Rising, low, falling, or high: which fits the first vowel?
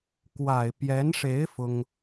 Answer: low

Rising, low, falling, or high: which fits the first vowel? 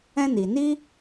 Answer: high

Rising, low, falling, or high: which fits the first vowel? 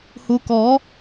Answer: low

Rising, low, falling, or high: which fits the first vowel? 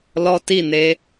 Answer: high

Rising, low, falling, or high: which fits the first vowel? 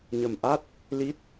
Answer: low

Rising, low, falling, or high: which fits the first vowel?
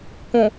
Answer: low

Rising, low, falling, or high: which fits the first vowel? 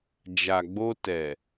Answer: low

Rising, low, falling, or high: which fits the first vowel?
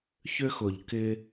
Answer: high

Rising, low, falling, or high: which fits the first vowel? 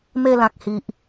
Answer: falling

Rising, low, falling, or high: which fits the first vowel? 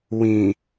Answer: low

